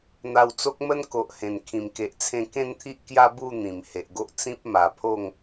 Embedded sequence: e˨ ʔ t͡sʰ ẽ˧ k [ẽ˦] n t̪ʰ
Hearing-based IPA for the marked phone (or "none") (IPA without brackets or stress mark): ẽ˥˧